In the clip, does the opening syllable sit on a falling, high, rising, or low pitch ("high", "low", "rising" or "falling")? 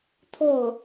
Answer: falling